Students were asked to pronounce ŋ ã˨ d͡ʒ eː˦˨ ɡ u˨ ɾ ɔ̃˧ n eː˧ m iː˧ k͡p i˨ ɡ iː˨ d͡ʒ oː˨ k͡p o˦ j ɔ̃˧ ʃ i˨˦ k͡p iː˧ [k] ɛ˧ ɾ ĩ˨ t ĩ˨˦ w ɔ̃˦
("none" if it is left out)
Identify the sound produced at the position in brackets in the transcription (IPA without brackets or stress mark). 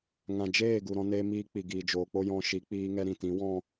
ŋ